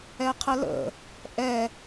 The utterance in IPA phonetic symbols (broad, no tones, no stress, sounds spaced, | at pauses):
ɛ qʰ ə l ə̰ | ʔ ɛ